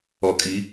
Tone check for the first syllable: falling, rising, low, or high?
low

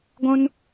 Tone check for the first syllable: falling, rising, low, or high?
high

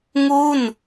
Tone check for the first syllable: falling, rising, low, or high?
falling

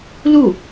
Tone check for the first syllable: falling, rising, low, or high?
falling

